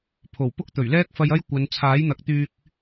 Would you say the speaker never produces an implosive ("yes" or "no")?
yes